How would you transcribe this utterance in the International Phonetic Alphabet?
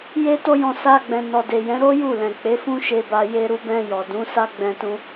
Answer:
j e˦ t o˦ j ɔ̃˧ s a˧ ɡ͡b ɛ̃˨ n ɔ˨ d e˨ j ɛ̃˨˦ ɾ o˦ j u˦˨ l ɛ̃˨ k͡p e˨˦ f ũ˦ ʃ e˧ b a˧ j e˧ ɾ u˧ b ɛ̃˧ j ɔ˨ d ũ˨˦ s a˦ ɡ͡b ɛ̃˧ t ũ˧

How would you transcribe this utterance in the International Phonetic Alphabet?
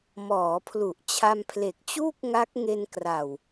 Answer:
m ɔː˩˦ pʰ l u˨˩ ʔ t͡ɕʰ a˧ m pʰ l e˨˩ k̚ t͡ɕ uː˥˩ k̚ ŋ a˦˥ k̚ ŋ e˧ n k r a˨˩ w

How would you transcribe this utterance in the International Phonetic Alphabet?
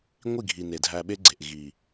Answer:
ŋʷ i˦˨ ɡʱ i˨ n e˨ dʱ æ˧ ɓ e˦ ɡ͡ǀ e˨ ʔ ɣ i˨

